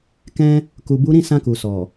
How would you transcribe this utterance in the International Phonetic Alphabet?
k ɛ̃˧ | k u˨ b u˨˦ ɾ ĩ˦˨ s ã˧ k u˨ s ɔ˨

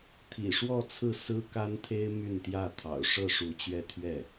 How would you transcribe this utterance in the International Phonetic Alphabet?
t̪ʰ ḭ˨˩ ʂ w ɔ˥˧ t͡sʰ ɹ̩˥˩ s ɹ̩˥ k a˥ n t̪ʰ e˥ ɪ̯ m y˥˧ n t̪ j ä˥˩ t̪ʰ ɑ̰˨˩ ʊ̯ ʂ ɤ˥˩ ʂ u˧˥ t͡ɕ ɥ ɛ˥˧ t̪ʰ ɥ ɛ˥˩

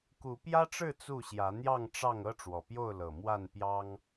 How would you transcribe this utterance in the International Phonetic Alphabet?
k u˨˦ p j ä˦ ʈ͡ʂ ɻ̩˥˨ t͡s u˥˨ ɕ j ä˨˦ n̪ j ɑ˥˨ ŋ ʈ͡ʂ ɑ˥˨ ŋ ɤ˦ ʈ͡ʂ w ɔ˨˩ p j o˥˨ ʊ̯ l ɤ˨˩ m w a˥˨ n p j ɑ˦ ŋ

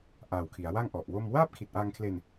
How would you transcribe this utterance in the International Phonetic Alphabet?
ʔ aː˨˩ w kʰ i˩˦ a̯ w a˥˩ ŋ ʔ ɔ˨˩ ʔ w o˥˩ m w aː˥˩ p̚ kʰ i˨˩ t̚ ʔ aː˧ ŋ kʰ l e˧ n

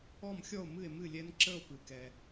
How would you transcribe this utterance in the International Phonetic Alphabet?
ɔ˥˨ m xʲ ɔ˥˨ o̯ m ɨ˥˨ e̯ m ɨ˥˨ lʲ ɛ˦˥ n ǁ ə˥˨ o̯ p ɨ˩ k ɛ˩

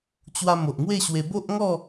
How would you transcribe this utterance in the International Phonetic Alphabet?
t͡ɕ w a˧ m o˨ ʔ ŋ w e˥˧ ɕ w e˧ b o˦ ʔ ŋ ɔ˥˧

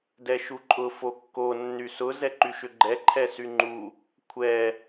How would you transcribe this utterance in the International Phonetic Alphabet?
d ɛ ʃ u ǃʼ ʊ f o kː o nː y s ʊ z ɛ ǃ y ʃ ʏ ɡ͡ǃ ɛ ǃʰ ɛ s y ŋ͡ǃ u | kʷʰ ɛ

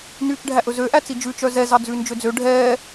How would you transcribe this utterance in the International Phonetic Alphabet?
n yː t͡ʃ ɖʱ æ ʔ ɵ z ø ʔ æ t͡s i d͡ʒ ʉ t͡ʃ œ z ɛ z ɑ d͡z ʉː n d͡ʒ ø d͡z ø ɖʱ ɛː

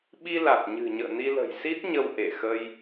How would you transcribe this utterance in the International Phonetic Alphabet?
ɓ i˧ l a˨˩ t̚ ɲ ɨ̤˨˩ ɲ ə̰ː˧˨ n i˧ l ə̤˨˩ j s i˦˥ t̚ ɲ ə˧ w ʔ e˧˩ x ə˧ j

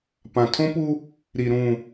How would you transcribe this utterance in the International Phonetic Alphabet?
p ã˨ tʰ õ˦ p u˦ | ɾ i˨ ɾ ũ˨

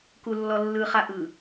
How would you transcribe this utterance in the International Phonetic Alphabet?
k u lː ɔ lː ɯ χ a ʔ ɯ

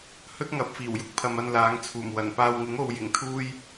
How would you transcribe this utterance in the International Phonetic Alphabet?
h ɵ˥ t̚ ŋ ɐ˨˥ p̚ f iː˨˩ w j ʊ˥ k̚ pʰ ɐ˨ m ɐ˧ n l aː˨˥ ŋ t͡sʰ uː˨˩ m w ɐ˨˩ n p aː˨ w ŋ ɪ˨˥ ŋ o˨ w j ɪ˨˩ ŋ t̪ʰ uː˥ j

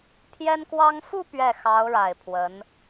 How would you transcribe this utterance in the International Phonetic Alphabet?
pʰ j ɛ˥ n k w ɑ˥ ŋ f u˥˧ p ɥ ɛ˥˩ x ɑ˧˥ ʊ̯ ɻ a˨˩ ɪ̯ pʰ w ə˧˥ n

